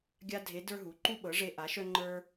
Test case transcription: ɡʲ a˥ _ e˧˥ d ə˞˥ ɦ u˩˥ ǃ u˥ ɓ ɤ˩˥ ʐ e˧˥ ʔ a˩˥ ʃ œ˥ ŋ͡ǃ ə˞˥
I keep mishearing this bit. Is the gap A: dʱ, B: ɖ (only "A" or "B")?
A